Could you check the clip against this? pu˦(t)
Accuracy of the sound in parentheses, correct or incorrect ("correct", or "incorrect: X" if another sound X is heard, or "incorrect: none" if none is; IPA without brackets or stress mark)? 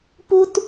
correct